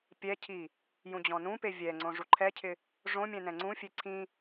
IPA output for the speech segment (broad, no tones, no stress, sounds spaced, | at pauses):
pʲ ɛ cʰ i | j ũ d͡ʑ ɔ̃ n ũ p e vʲ ɛ ŋ͡ǀ õ ʐ u ǃʰ ɛ cʰ ɪ | ʐ õ mʲ ɛ̃ n ɛ̃ ŋ͡ǀ ũ fʲ e ǀʰ ĩ